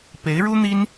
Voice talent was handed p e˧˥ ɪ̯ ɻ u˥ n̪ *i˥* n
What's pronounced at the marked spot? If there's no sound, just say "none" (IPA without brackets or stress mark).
i˥